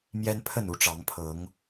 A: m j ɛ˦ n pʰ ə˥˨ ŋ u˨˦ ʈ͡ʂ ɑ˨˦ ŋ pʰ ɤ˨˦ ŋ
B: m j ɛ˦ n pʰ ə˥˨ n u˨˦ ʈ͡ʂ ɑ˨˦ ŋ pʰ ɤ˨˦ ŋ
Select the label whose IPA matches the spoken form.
B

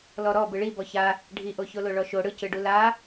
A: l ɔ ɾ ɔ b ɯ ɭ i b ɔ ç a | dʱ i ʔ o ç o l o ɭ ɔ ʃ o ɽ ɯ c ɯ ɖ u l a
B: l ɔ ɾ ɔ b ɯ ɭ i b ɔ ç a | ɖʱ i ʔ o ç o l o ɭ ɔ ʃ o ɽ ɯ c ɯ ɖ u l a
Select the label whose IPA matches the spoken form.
B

